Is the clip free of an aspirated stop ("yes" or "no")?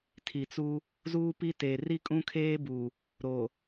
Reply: no